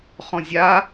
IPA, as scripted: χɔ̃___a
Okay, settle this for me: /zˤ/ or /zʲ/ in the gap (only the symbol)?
zʲ